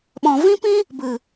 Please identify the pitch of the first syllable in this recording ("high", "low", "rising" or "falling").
low